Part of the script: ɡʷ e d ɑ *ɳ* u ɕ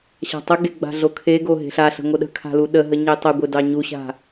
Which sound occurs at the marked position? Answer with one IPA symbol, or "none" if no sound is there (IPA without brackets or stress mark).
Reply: ɲ